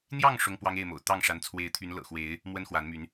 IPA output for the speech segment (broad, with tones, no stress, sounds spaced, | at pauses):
n̪ j ɑ˥˨ ŋ ʂ ʊ˦ ŋ p w ɑ˦ ŋ e˥˨ ɪ̯ m o̰˨˩ ʊ̯ t̪ ɑ˥˨ ŋ ʂ a˨˦ n t͡sʰ w e˨˦ ɪ̯ t̪ʰ y˨˦ n l ɤ̰˨˩ x w e˨˦ ɪ̯ | m w ə˦ n x w a˨˦ n m y˨˦ n